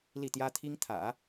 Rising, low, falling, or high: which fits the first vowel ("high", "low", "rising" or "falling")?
falling